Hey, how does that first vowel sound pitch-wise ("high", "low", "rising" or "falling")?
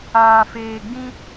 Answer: low